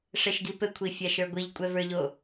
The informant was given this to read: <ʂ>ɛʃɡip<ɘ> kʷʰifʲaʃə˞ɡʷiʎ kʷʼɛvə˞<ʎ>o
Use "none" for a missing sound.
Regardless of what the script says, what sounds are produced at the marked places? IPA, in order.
ʂ, ɘ, ʎ

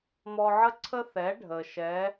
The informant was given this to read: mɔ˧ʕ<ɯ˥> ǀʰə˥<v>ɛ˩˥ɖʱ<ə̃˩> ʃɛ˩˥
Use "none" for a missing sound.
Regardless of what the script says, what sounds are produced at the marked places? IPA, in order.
ə˥, θ, ə˩

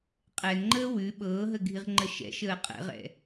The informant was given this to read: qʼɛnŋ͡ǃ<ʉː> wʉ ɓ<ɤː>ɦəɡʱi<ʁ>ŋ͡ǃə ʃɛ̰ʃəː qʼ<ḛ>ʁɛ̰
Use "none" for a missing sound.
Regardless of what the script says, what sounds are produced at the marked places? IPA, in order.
əː, ɤː, ʁ, ɛ̰

